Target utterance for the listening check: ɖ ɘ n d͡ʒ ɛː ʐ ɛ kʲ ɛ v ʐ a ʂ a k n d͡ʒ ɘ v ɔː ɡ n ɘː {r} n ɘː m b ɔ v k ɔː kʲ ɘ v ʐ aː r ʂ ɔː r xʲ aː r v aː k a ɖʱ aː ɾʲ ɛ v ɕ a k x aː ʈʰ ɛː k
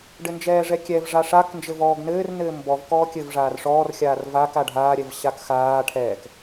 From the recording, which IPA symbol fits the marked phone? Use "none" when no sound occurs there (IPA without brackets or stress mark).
r